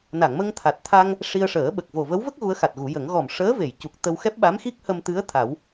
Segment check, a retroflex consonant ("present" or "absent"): present